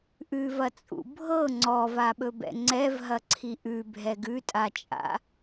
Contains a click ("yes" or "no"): yes